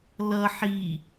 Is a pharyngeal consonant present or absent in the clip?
present